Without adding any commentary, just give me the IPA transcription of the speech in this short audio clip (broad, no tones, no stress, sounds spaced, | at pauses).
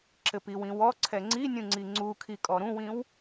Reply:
ǁ ɘ p i w ĩ w ɔ ǀʰ ɛ ŋ͡ǀ i nʲ ũ ŋ͡ǀ i ŋ͡ǀ u kʰ i kʼ ɔ ɾ ũ w ĩ w